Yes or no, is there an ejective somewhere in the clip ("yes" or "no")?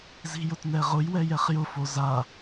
no